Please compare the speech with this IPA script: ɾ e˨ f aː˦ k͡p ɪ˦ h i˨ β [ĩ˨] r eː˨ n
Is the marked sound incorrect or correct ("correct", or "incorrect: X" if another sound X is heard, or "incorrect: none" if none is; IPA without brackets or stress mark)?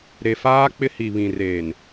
correct